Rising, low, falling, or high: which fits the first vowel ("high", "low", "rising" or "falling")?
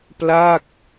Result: falling